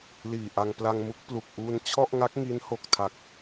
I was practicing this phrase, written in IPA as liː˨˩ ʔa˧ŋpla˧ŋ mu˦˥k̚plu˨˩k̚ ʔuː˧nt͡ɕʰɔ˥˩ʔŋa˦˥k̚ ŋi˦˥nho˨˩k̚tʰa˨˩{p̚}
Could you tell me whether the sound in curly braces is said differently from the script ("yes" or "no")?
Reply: yes